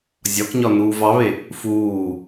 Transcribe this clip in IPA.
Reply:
zʲ ɒ k ɲ ɒ n uː v ɑ β e | f uː

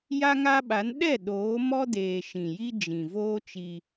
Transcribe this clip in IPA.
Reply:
j a˦ ŋ a˦ ɓ a˨˦ n ɗ ɛ˦˨ ɗ oː˨˦ m ɔ˦ d eː˨ ʃ ĩ˨ j i˦ d͡ʒ ĩ˨ v oː˦ t͡ʃ i˦

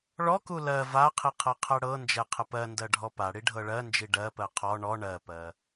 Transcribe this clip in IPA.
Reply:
ɭ ɔ k u l ɜ v a qʰ i qʰ ɤ qʰ ɜ ɽ ɤ n d͡ʒ ɛ qʰ ə p ɜ n d ɜ ɖʱ ɔ p a ɽ i ɖʱ ɤ ɭ ɜ n d͡ʒ i ɖ ɜ p ɜ qʰ ɔ ɳ ɔ ɳ ɜ p ɜ

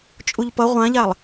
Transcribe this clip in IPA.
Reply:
t͡ʃʼ u ʎ p ʌ ʁʷ ã ʎ a lˠ

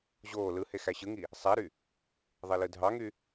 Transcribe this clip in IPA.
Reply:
ʑ oː l ɯ h e x æ ɕ ɯ ŋ i | sˤ æ ɾ y | ðˤ e l ɯ dʱ ɑ ŋ y

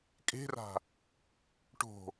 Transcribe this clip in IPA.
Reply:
kʼ e̤ r a̤ | ʈ o̤

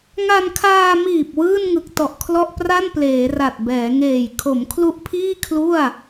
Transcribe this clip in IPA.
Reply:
ŋ a˧ n kʰ aː˧ m iː˨˩ p̚ w ɯː˥˩ n ŋ ɯ˨˩ k̚ t ɔ˨˩ ʔ kʰ l ɔ˥˩ ʔ p r a˥˩ n p l eː˩˦ r a˨˩ t̚ b ɛː˩˦ ŋ eː˨˩ j kʰ o˩˦ m kʰ l u˦˥ ʔ pʰ iː˥˩ kʰ l u˥˩ a̯

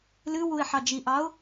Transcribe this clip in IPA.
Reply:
l ɨ w u ɪ̯ ħ ɑ d͡ʒ i ʔ ɑ ʊ̯

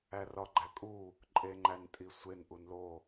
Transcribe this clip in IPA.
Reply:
æ r ɒ ɡ͡ǃ æ kʼ u | ǃʼ e ŋ͡ǃ æ n tʼ i sʷ e n ʔ u n l o

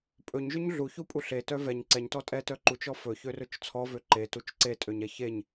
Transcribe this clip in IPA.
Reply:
pʼ ɵ ɲ ʒ ø ɲ ɮ u ç u pʼ u ɬ e t œ v ɛ ɲ ǀ ɛ ɲ t ɔ tʼ ɛ t œ ǃ u t͡ʃ ɔ f ɵ ç ø r ɵ t͡ʃ t͡sʰ ɔ v ø ǃ e t u t͡ʃ ǀ e tʼ ø ɲ ɛ ç e ɲ

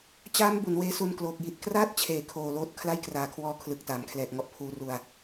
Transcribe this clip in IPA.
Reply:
t͡ɕ aː˦˥ m b u˩˦ n w eː˦˥ s u˧ n k l oː˨˩ k̚ j i˨˩ t̚ k r aː˥˩ t̚ t͡ɕʰ eː˨˩ kʰ oː˨˩ l oː˦˥ t̚ kʰ l a˥˩ j k r aː˨˩ kʰ w ɔː˧ kʰ l ɯ˨˩ k̚ t aː˩˦ m kʰ l ɛː˨˩ k̚ ŋ ɔ˦˥ ʔ pʰ uː˧ r u˧ a̯

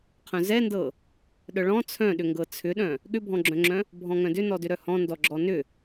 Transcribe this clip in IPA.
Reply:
qʰ œ̃ z ɛ n d ɤ | ɗ œ ɭ ɔ̃ t͡sʰ œ̃ ɗ ʏ ŋ ɡ ɤ t͡sʰ ʏ ɗ œ̃ | ɠ ʏ bʱ ɔ̃ ɡ͡ǁ œ̃ ŋ͡ǁ œ̃ | bʱ ɔ̃ ŋ œ̃ d ʏ n ɔ d ʏ ɾ œ h ɔ̃ n d ɔ ɡ͡ǁ ɔ n ʏ

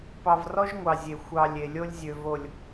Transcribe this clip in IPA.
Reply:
p ɑ˨ v r ɔ˦ ʒ ŋʷ ɑ˨ zʲ e˨ xʷ ɑ˨ lʲ e˨ lʲ o˦ lʲ zʲ ø˨ v o˨ lʲ

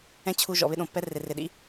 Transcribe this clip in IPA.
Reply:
ɛ̃˦ t͡ɕʰ u˧ ʒ ɔ̰˨ β ɪ˦ ɗ õ˨ pː ɛ˦ r ɪ˨ r ɪ˨ ɗ ḭ˦

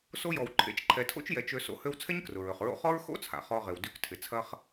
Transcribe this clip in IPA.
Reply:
s o˥ j ɔ˨ w ǃʰ ḛ˨ t͡ʃ ǃʰ ɛ˨ tʰ o̰˥ t͡ʃ j ɛ˨ t͡ʃ ø˦ s o̰˦ h ø˥ w t͡sʰ ɛ˥ ɲ k r ʊ˩ ɹ ø˩ χ ɹ o̰˦ χ ɔ˥ ɹ x o̰˥ t͡sʰ a̰˩ χ ɔ˨ ʁ ɪ˩ w d y˨ k tʰ ɪ˩ t͡sʰ ɐ˥ χ

